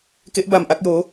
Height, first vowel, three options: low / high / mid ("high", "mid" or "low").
mid